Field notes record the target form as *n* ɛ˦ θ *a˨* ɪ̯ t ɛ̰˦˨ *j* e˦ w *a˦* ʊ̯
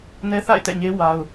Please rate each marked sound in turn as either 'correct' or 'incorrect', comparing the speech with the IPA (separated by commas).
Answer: correct, incorrect, incorrect, correct